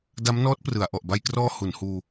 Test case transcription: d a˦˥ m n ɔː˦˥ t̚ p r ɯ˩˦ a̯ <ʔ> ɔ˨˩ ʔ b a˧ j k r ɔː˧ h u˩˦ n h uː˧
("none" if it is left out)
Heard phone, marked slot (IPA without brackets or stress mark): ʔ